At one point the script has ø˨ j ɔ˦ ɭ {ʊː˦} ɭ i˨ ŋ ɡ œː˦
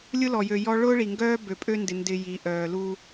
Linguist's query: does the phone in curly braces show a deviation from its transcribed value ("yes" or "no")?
no